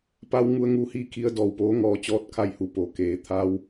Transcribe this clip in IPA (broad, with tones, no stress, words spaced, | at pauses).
pa˧w ŋu˧˥ə̯ŋuː˧hiː˥˨ kʰi˧ə̯dɔː˩wpoː˧˥ ŋɔː˧t͡ɕɔː˥˨t̚kʰa˥˨jhu˧˩ po˩keː˩˧ t̪ʰa˧w